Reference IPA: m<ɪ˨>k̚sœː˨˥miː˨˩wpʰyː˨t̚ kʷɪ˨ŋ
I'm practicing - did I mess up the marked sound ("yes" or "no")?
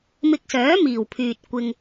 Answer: yes